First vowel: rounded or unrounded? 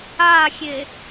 unrounded